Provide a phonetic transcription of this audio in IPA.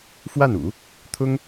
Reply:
f w a˥˩ n ṵ˨˩˦ | t̪ʰ ʊ˥ ŋ

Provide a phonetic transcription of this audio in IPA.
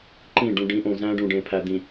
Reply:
ǃ ĩ˦˨ ɖ ũ˨ ɖ ĩ˨˦ ʔ õ˨ z æ̃˦ ɖ ũ˨ ɖ ẽ˨ pʰ æ˨ d̪ ĩ˨

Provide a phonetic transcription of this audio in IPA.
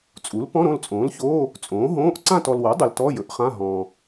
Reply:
t͡sʼ u˩˥ l p ɔ̃˧˥˧ ɾ õ˦˨ l t͡sʼ õː˩˥ l ç oː˧˥˧ | t͡sʼ õː˩˥ ɦ õː˧˥˧ ʔ ǀ ã˦˨ t ɔ˨ l w o˩˥ dˤ ɵ˨ l t ɔ˧˥˧ j ɵ˩˥ ʔ χ ã˧˥˧ ɦ ɔ̃ː˨

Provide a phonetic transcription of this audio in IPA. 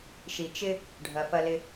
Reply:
ʃ i˩ t͡ʃ ɪ˧ | ɖʱ ɐ˩ f ɐ˧ l ɪ˧

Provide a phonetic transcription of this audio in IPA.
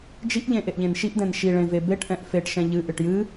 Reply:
d͡ʒ i ʔ ʎ ẽ ʔ e ʔ ʎ ẽ n ʃ i ʔ d ɛ̃ n ʃ i ɭ ẽ v e b e ʈ ʔ ɛ̃ ʔ f e ʈ ʃ ɛ̃ ʎ ɨ ʔ ɨ ʈ j ɨ

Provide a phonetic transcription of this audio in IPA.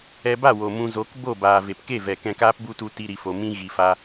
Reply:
ɛ˧ b a˦˨ w o˨ m ũ˨ z o˨˦ k b o˦˨ b aː˨ v e˨ p k e˦˨ v ɛ˨ k ɛ̃˧ k aː˦ p b u˦ t u˧ t i˦ ɾ i˧ f o˧ m ĩ˦ ɣ i˧ f a˦

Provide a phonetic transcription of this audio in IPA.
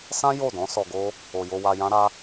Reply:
s ã˦ j o˦˨ d ɔ̃˨˦ s ɔ˧ ɡ o˦ | o˨ j o˧ w a˧ j ã˦ ɾ a˦

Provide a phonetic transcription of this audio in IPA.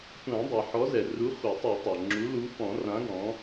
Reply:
tʷ ã˨˩˦ dˤ i˩ ħ ɔ˨˥ z ɛ˩ r u˨˥ χʷ ɐ˨˩˦ tˤ i˨˩˦ tˤ a˩ ŋ͡ǁ u˨˥ l u˨˥ f ɔ̃˨˩˦ r ã˨˥ ɡ ɔ̃˨˥

